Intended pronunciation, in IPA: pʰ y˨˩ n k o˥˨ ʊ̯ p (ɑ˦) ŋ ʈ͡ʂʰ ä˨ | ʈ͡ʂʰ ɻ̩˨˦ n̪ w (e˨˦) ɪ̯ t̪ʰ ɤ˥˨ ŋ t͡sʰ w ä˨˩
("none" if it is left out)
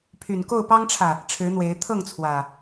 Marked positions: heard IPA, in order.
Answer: ɑ˦, e˨˦

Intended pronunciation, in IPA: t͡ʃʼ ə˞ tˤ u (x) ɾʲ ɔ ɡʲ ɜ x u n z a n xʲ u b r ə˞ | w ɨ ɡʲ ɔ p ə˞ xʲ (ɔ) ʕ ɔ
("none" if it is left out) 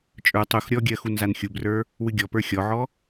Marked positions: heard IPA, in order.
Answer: x, ɔ

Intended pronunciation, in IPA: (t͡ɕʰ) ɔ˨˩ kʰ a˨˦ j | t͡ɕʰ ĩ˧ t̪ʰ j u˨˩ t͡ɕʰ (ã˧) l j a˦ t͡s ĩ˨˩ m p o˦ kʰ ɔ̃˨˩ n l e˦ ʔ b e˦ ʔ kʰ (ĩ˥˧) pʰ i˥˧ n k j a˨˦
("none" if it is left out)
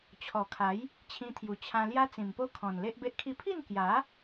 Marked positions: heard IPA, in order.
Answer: t͡ɕʰ, ã˧, i˥˧

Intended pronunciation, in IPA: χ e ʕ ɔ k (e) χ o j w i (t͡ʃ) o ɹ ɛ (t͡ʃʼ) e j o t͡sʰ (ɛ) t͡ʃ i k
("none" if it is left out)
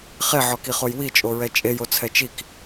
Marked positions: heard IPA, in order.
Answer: i, t͡ʃʼ, t͡ʃʼ, ɛ

